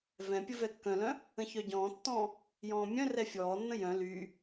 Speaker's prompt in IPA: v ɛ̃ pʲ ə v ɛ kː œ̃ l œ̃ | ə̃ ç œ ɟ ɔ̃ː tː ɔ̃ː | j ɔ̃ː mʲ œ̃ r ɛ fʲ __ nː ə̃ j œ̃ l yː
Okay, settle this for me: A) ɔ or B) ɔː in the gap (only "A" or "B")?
B